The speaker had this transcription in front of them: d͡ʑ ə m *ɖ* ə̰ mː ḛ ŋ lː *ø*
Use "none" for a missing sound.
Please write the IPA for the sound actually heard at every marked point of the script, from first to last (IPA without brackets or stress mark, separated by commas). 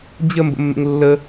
b, ə